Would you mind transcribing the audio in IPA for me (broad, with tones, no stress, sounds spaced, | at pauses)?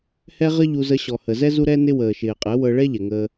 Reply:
h ɛ˦ ʁ ə˦ ʎ u˧ z ə˧ ɕ ɔ˨ h ə˨ z ɛ˦ z u˦ ɾ ɛ˦ n ɪ˦ w əː˨ ʃ ɪː˨ qʼ ɛ˨˦ w ɤ˧ ɭ ɛ˦ ʎ ɛ˨ ŋ əː˦